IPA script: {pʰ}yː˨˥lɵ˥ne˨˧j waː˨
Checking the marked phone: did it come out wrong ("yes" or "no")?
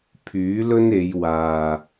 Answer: no